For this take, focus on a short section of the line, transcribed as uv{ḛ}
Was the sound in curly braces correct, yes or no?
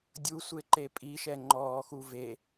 no